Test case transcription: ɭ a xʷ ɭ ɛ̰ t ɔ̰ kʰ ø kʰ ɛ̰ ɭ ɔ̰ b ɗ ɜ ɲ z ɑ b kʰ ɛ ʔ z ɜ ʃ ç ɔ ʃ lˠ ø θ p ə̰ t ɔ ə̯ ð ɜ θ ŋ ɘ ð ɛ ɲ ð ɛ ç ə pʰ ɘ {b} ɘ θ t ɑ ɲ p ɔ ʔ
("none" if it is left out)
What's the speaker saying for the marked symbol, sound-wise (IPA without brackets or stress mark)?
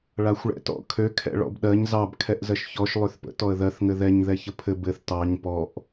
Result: b